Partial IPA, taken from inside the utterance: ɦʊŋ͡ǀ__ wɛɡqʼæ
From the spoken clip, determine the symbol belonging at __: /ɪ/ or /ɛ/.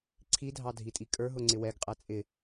ɪ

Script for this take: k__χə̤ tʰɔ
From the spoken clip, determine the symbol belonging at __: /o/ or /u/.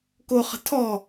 o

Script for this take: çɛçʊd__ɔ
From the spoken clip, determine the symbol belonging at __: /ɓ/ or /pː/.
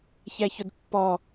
pː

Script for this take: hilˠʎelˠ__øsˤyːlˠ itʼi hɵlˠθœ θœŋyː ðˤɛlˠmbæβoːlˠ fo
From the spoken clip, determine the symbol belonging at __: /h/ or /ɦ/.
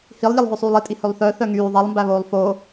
ɦ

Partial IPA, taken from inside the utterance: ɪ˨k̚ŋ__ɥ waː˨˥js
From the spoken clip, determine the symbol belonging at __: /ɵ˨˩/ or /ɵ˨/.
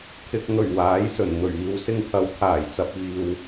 ɵ˨˩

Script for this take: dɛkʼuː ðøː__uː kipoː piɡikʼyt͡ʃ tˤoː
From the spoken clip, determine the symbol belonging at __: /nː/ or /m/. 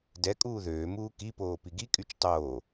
m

